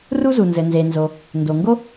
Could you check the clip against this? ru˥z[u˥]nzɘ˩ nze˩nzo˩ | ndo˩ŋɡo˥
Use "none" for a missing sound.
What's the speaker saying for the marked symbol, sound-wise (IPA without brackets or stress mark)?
u˩